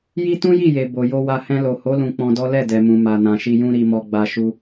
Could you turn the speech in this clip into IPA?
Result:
j i˦ t ũ˦ j i˦˨ j e˨ b o˨ j o˧ w a˧ h ɛ̃˧ l o˨ h o˨˦ l ũ˧ k͡p ɔ̃˧ d ɔ˦ l ɛ˦˨ d ɛ˨ m ũ˨ m a˨ n ã˨ ʃ i˧ j ũ˦ ɾ i˧ m ɔ˧ ɡ͡b a˧ ʃ u˧

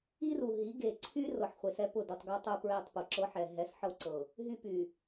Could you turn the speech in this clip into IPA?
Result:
i˦ r u˨ ɦ i˨˦ ɡ e˨ ǀʰ y˦ r ɤ˨ ħ χʷ e˨ s ɛ˦ p ʊ˦˨ d u˨ tˤ ɡ ɤ˦ tˤ u˦ p ɹ ɛ˦˨ tˤ p u˨ ǁ ɤ˦ ħ ɛ˨ ɦ ɛ˨˦ s ħ ɤ˦ ǀ ɤ˨ | ɦ y˦ p y˨

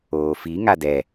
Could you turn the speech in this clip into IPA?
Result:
oː f i ŋ a d ɛ

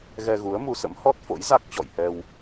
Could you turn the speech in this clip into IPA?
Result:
ɣ ɛ˧ ɣ u˨˦ ə̯ m u˧ s ə̰˧˥ m h ɔ˦˥ t̚ f o̰˧˥ j z a˦˥ k̚ t͡ɕ ɔ̰˧˨ j h ɛ˧ w

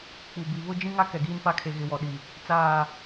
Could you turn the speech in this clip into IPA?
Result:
k͡p u˨ b i˨ β ʊ˦ d͡ʒ ĩ˦ ŋ a˦ k ɛ˨ ɡ iː˦ n f a˦ kʰ e˨ ɣ ɪ˨ w ɔ˨ ɗ i˨ | t͡s aː˦˨

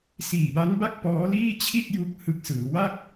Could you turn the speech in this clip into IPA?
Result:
s iː˨˩ b a˦˥ n b a˥˩ k̚ p ɔː˦˥ l iː˥˩ t͡ɕʰ i˥˩ t̚ j u˦˥ k̚ h ɯ˨˩ k̚ s ɯː˩˦ w a˥˩ k̚

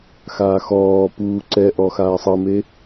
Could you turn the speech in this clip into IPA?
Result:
x aː x ɔː p uː ǀ ɛ ʔ ɔ x aː sˤ ɤ m e

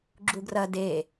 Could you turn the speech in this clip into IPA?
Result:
ɡ͡ǁ u ɡ r ɐ d e

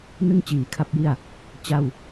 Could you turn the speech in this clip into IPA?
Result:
n ɯ˥˩ ŋ t͡ɕ iː˩˦ kʰ a˦˥ p̚ j i˥˩ a̯ | t͡ɕ a˥˩ w

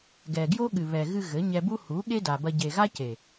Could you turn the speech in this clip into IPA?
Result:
ɡ ɛ˨ ɡ j o˦ ɠ ɨ˨ β ɛ˨ ɣ ɨ˧ ɣ ɘ˨˦ ɲ ɛ˧ b u˦ h u˨˦ ɠ e˦ d a˨ b ɐ˧ ɟ e˨ ɣ a˦ c e˨

